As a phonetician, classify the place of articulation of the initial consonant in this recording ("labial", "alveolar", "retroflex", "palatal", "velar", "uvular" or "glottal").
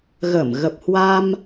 velar